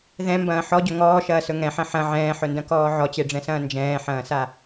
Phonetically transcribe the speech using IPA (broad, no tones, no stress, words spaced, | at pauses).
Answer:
ðɛ̃mbɐ̃ː ħɔɟɵ ŋɔːʃɐːsɵ ŋɛ̃ħɐ̃ ħɐ̃ ʕɛ̃ːħɵndɐ̃kɔː ʕɔt͡ɕeɖ͡ʐɛ̃sɐ̃ː nd͡ʒɛ̃ːħɐ̃ːsa